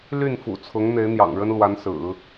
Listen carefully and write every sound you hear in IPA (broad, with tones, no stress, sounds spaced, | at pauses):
l y˥˩ n f ṵ˨˩ t͡sʰ ʊ˧˥ ŋ n̪ e˧˥ ɪ̯ n̪ j ɑ̰˨˩ ŋ ɻ ə˥ n l w a˧˥ n s ɹ̩˨˩˦